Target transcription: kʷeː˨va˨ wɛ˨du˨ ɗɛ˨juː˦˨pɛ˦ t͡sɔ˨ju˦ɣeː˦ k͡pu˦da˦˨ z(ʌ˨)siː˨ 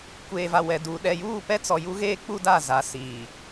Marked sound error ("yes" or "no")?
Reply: yes